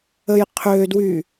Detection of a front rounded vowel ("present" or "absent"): present